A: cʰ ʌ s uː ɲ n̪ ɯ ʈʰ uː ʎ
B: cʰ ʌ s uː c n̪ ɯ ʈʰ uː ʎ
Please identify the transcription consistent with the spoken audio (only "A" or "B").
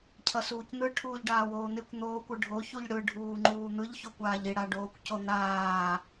B